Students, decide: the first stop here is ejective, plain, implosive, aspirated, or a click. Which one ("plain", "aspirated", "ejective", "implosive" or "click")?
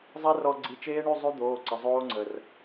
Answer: click